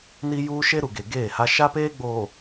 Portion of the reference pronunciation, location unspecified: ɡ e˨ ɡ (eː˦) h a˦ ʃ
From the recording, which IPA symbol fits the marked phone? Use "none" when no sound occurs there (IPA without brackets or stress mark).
eː˦˨